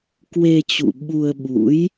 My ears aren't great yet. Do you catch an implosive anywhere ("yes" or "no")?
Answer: yes